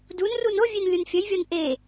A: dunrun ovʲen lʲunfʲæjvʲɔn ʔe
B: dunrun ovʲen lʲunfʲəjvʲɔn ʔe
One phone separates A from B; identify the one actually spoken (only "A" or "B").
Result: B